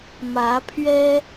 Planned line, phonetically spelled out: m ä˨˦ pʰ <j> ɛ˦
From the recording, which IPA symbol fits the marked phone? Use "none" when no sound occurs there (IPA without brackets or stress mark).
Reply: ɥ